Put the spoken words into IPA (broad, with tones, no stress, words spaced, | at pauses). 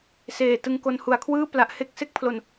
seː˨˩tɯ˧ŋko˧n hu˨˩a̯kʰwɯː˥˩ pla˦˥ʔ he˥˩k̚ se˥˩k̚pʰlo˧n